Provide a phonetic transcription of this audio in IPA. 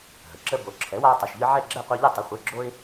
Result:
ɦ ə˩ ǁ ə˦ b o˩˥ ǁʰ ɛ˩˥ w a˦ ʊ̯ tˤ ə˩˧˩ ʃ ʎ ɨ˦ ʕ ɛ˥˨ ɡ͡ǁ ɛ˥˨ qʷ e˦ ʎ ɨ˥˨ tˤ ə˩˥ χʷ e˩˧˩ ɡ͡ǁ o˦ ɪ̯

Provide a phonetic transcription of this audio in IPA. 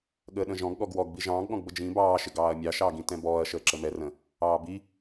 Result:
ɠ əː ɗ ə̃ ʒ ɔ̃ ɡ ɠ ɔ ɡ w ɔ ɡ b i ʒ ɑ̃ː ɡ ɠ ɔ̃ ɡ b ə d͡ʒ ĩ b ɑː ʃ ɪ ɡ ɑː ɐ̯ mʲ ɑ ʃ ɑː ɡ ĩ t ɛ̃ b ɔː ɐ̯ ʃ əː ǁ ə m ɛ r ə̃ | ɑː b i

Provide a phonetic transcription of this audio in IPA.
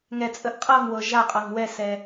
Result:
ŋ ɛ˨ t͡sʼ ə˨ ʔ qʼ ɤ˦˨ ŋ w ɤ˨ ʒ a˦˨ qʼ ɤ˨ ŋ w ɛ˦˨ s ɛ˨

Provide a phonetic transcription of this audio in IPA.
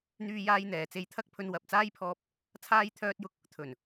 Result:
n̪ yː˥ j aː˥ j n̪ ɛː˨ t͡s e˧ j t̪ʰ ɐ˥ k̚ pʰ ɵ˧ n w ɐ˨ p̚ t͡s aː˥ j pʰ ɔː˧ p̚ | t͡sʰ aː˥ j t̪ʰ œː˥ t̚ j ʊ˥ k̚ | t̪ʰ ɵ˨˩ n

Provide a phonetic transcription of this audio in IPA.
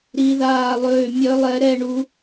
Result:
ɾ i˧˥ ð aː˥˧ lˠ øː˥˧ mʲ œ˧˥ lˠ ɛ˧˥ ɾ ɛ˥˧ ɳ u˧˥

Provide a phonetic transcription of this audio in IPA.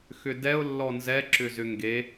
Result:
x ʏ d ɛ ʊ̯ lː ɔ n z ɛ ǁ ʏ z ʏ ŋ ɡ e

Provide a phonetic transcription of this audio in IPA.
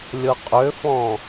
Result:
lʲ ɤ qʼ ø f ɔ̃

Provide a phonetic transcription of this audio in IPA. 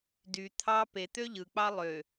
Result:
d y t̪ʰ ɑ p e t̪ ø ʎ ɯ k͡p ɑ lˠ ø

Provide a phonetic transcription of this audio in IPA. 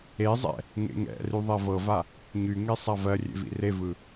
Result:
e zˤ ɛ̰ | ŋ ḛ ŋ ɛ̰ r y ðˤ ɛ v ɤ v a | ɲ y ŋ e sˤ a v ɜ rʲ ḛ v ḭ r e v ɯ

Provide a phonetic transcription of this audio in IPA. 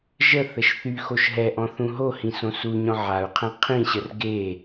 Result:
ʒ ə θ ə ʃ θ y x o ʃ ɦ ɛ ʔ ɔ̃ θ ũ ɦ o h ĩ s õ s u ɲ ɔ̃ ʕ a u̯ qʰ ɛ̃ qʰ ĩ ɕ ə r ɡ e

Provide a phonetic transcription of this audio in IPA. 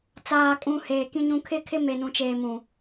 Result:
t͡s aː˨ kʼ ũ˨ h eː˨ k ĩ˦ ɲ ũ˦ kʰ ɪ˦ kʰ ɪ˦ m e˨ n ũ˨ t͡ʃ eː˨ m ũ˨

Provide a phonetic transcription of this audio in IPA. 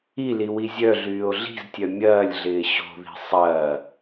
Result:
i l i w i zʲ œ ɮ yː o̯ ɮ i̤ z tʲ œ mʲ ɐː lʲ ɮ ɪː ɕ o̤ ð i̤ sˤ ɐː

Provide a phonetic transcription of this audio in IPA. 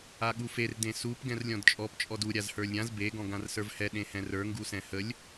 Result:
a ɠ u f e r d ẽ s u p ɡ ɛ̃ r lʲ ɔ̃ d t͡ʃʼ ɔ p t͡ʃʼ ɔ d u ɾʲ a z h ə˞ lʲ ɾʲ ã z b e ɡ ɔ̃ ɡ ã r s ə˞ v h ɛ ɗ ẽ h ɛ̃ r ə˞ ŋ ɡ u s ɛ̃ h ə lʲ

